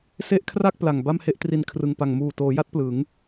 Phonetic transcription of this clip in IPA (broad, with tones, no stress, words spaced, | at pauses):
se˦˥ʔ kʰra˥˩k̚ pla˨˩ŋba˥˩mhe˥˩ʔ tri˨˩n kʰrɯ˨˩ŋpa˨˩ŋ muː˨˩toː˩˦ja˦˥t̚ plɯ˩˦ŋ